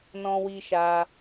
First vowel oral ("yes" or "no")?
no